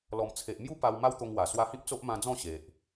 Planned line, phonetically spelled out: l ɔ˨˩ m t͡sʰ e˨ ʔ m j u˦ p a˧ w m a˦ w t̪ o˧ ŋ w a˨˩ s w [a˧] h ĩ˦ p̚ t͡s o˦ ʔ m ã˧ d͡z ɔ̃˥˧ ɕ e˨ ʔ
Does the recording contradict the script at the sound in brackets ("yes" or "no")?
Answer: no